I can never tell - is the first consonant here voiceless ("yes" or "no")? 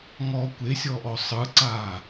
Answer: no